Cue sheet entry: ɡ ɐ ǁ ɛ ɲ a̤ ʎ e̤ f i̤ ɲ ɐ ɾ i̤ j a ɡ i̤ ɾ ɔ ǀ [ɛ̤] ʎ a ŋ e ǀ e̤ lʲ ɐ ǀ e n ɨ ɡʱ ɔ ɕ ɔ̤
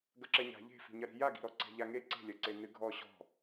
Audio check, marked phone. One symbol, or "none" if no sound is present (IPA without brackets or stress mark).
ɛ̤